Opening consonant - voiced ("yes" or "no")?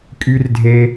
no